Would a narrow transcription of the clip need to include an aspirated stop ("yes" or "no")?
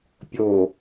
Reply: no